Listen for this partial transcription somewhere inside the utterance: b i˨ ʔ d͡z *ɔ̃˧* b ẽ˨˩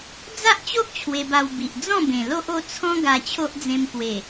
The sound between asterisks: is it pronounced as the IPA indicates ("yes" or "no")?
no